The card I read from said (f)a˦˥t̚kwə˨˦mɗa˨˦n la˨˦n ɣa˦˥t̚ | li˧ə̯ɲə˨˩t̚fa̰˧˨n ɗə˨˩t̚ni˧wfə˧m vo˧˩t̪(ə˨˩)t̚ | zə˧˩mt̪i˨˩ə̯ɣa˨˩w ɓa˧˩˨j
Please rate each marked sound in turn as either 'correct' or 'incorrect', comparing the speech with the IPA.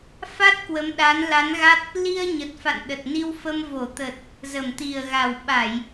correct, correct

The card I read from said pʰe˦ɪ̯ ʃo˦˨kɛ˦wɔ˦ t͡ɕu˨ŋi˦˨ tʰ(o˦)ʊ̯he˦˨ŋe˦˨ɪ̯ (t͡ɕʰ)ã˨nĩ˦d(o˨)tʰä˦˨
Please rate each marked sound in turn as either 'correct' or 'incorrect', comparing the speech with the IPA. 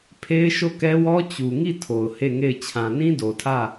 incorrect: o˨, correct, correct

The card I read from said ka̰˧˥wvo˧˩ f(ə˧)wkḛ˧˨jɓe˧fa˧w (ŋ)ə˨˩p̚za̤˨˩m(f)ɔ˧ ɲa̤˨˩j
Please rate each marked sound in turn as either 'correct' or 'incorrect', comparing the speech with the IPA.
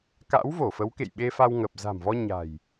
incorrect: ə˨˦, correct, incorrect: v

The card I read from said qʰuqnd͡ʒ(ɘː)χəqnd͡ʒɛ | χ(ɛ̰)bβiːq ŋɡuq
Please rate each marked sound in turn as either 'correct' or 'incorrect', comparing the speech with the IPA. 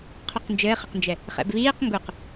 correct, correct

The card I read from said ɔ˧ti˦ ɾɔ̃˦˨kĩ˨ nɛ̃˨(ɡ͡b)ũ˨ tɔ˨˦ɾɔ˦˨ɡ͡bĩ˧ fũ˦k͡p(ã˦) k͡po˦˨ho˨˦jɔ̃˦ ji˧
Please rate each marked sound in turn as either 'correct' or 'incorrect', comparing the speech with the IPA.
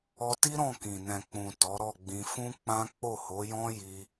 incorrect: k͡p, correct

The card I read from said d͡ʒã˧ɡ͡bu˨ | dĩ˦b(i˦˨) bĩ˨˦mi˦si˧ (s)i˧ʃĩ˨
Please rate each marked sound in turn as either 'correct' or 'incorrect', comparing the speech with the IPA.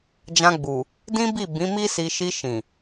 correct, incorrect: ʃ

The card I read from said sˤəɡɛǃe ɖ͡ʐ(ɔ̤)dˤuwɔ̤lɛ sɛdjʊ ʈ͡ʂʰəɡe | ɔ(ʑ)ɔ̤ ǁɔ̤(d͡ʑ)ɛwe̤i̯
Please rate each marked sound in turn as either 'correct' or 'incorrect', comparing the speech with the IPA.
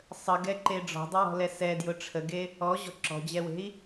correct, correct, correct

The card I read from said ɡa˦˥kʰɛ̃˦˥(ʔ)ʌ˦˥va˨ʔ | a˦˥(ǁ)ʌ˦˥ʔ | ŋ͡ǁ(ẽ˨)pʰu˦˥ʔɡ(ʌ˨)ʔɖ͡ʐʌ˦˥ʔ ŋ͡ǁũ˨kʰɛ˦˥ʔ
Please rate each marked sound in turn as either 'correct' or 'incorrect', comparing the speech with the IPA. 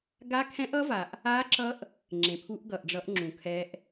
correct, correct, correct, correct

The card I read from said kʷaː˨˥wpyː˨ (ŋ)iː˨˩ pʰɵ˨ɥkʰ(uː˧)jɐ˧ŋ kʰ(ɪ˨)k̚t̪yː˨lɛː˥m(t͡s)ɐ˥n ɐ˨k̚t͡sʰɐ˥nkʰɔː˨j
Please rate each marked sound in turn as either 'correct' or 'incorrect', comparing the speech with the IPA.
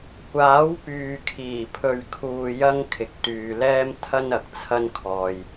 incorrect: kʰ, incorrect: uː˨, correct, incorrect: t̪ʰ

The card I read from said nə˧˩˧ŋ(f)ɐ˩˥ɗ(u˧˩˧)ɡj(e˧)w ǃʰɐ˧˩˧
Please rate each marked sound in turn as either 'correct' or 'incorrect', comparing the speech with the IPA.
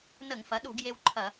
correct, correct, correct

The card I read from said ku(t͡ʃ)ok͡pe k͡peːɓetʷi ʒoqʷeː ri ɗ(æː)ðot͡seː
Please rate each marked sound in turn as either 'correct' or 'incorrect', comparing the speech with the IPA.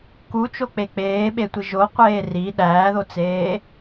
correct, correct

